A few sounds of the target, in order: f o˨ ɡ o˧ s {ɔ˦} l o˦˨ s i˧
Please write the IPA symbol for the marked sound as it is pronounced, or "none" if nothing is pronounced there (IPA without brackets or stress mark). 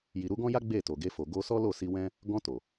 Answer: ɔ˦